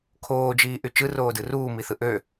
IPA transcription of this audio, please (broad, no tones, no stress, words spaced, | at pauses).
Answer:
kʰoːd͡ʒiːʔy t͡ʃɯroːdɯ ruːmiθɯ ʔø